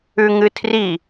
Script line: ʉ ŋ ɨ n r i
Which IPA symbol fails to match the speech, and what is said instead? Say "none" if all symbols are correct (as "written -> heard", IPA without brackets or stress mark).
n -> tʰ